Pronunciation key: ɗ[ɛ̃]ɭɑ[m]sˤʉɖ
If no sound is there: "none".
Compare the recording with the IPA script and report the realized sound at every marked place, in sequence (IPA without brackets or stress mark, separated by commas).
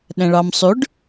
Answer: ɛ̃, m